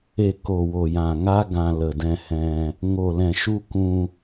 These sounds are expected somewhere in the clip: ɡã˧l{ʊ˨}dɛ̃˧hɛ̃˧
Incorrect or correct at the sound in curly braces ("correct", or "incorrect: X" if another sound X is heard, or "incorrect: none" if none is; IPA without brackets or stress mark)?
incorrect: ə˨